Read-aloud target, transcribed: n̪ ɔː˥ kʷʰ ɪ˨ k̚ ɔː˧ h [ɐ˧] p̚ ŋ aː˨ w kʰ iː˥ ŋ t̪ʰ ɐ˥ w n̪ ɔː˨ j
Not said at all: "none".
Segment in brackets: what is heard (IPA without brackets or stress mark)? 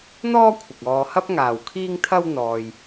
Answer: ɐ˥